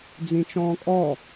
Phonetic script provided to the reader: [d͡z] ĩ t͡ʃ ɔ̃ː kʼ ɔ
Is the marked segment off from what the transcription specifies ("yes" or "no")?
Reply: no